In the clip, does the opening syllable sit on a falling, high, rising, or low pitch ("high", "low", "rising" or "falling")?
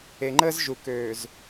low